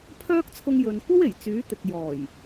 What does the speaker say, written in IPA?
pʰ œː˥ k̚ t͡sʰ ʊ˧ ŋ j ɵ˨ n kʷ ɐ˥ w e˨˩ j t͡s yː˨˥ t̪ ɪ˨ k̚ j ɔː˨˩ j

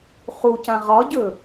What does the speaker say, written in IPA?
χ u c ã ʁ ɒ ɟ ɵ

